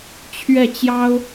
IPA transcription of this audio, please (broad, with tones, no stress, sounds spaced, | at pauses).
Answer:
t͡ɕʰ ɥ ɛ˥˩ t͡ɕ j ɑ˥ ʊ̯